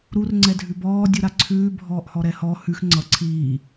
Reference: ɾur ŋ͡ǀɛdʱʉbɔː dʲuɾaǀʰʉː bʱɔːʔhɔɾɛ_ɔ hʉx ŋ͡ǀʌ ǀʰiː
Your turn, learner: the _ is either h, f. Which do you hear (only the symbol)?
h